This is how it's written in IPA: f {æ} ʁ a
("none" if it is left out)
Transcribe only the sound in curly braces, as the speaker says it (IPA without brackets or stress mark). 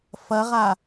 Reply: ɐ